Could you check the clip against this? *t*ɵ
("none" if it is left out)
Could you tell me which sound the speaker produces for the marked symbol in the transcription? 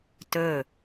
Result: t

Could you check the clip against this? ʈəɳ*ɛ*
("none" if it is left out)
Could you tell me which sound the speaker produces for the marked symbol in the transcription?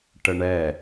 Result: ɛ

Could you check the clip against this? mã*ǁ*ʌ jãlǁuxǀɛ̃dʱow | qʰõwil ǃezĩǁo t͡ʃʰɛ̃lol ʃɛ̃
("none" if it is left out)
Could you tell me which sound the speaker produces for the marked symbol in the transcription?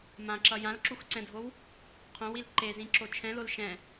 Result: ǁ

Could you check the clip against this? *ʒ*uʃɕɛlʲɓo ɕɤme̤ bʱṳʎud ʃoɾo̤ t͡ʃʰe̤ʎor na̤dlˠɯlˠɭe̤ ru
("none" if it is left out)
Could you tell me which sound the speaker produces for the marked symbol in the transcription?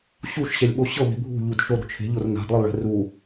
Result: ɕ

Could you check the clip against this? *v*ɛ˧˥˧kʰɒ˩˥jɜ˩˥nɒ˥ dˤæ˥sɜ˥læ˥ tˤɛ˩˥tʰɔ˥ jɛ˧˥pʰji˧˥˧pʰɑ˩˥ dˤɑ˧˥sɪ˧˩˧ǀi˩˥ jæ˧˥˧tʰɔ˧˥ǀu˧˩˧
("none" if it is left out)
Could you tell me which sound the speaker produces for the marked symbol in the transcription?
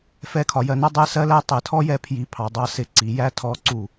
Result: f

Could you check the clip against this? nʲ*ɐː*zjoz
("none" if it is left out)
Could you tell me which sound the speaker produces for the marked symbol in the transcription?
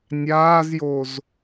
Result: aː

